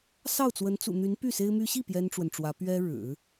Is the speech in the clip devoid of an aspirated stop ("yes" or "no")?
yes